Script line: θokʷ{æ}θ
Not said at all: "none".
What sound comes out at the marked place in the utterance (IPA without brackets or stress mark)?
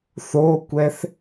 ɛ